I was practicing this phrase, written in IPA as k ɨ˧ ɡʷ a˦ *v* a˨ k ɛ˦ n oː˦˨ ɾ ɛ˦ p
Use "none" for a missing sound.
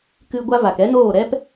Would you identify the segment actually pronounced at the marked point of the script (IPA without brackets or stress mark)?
v